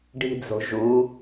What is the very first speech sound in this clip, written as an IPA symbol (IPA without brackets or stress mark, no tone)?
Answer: ɖ